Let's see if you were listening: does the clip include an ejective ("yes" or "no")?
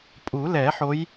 yes